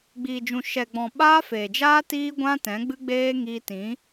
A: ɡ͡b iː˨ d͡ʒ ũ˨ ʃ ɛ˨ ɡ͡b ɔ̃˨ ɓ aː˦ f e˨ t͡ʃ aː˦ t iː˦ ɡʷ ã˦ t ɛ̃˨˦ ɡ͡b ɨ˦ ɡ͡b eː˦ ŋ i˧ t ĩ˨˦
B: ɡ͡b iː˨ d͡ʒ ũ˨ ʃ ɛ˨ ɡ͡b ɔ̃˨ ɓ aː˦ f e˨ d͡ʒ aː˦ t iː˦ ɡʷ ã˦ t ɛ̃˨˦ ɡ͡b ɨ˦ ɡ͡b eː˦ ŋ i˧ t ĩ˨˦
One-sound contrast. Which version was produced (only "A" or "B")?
B